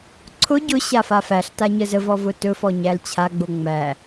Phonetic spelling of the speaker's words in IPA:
ǀʰ ʊ ɟ ʊ ɕ a f a f æ ɬ t a ɲ ə z ə v ɔ v ʊ t ɵ f ɔ ɲ æ l t͡ɕʰ a ɡ͡b o ŋ͡m æ

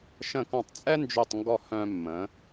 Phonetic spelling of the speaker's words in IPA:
ʃ ə̃˧˩ k ɔ̃˧˩ tˤ t͡sʼ ɛ˥ n d͡ʒ ø˥˧ tˤ ŋ ɡ ɔ˥˧ h œ̃˧ mː ə̃˩˧

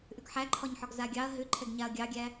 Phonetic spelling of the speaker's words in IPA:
ʔ ʏ ɡ ħ æ ǃʰ ɒ ɲ ħ ɒ ɡ z a ɡʲ ɑ ɐ̯ ɦ ʏ ǃʰ ɛ ɡ ɲ a ɐ̯ ɡʲ ɑ ɡʲ æ

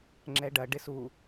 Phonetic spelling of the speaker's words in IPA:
ŋ͡ǁ ɛ ɖ ɐ ɖ ɪ s u

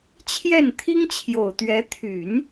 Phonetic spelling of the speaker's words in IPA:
t͡ɕʰ j ɛ˥˩ n t̪ʰ i˥ ŋ t͡ɕʰ j o˨˩ ʊ̯ t̪ ɥ ɛ˧˥ t̪ʰ y˨˩˦ n

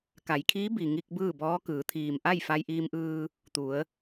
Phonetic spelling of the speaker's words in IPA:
k a˩˧ j kʰ iː˧˥ b i˩ ŋ i˧ k̚ b ɯː˥˨ b ɔː˧˥ k ɯː˩˧ t̪ʰ iː˩ m ʔ a˥˨ j f a˧ j ʔ iː˧ m ʔ ɯː˧ | t̪ u˩˧ ə̯

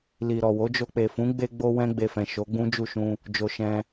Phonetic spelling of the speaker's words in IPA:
l i˨ ɾ ɔ˨ w o˨˦ d͡ʒ o˧ k͡p e˨ f ũ˨˦ ɡ͡b e˧ ɡ͡b o˧ w ɛ̃˧ ɡ͡b e˧ f ɛ̃˨ ʃ o˨˦ ɡ͡b ũ˦ d͡ʒ u˦˨ ʃ ũ˧ | d͡ʒ o˨ ʃ ɛ̃˧

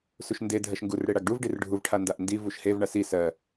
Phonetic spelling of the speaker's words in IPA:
s u ʃ n d e dʱ ɜ ʃ ŋ ɡ u r ɽ e ɽ a ɡ ɖ u v ɖ i r ɖʱ u v ʈʰ a n d a ʔ n d i v u ʃ h e v ɳ a s i s ɜ

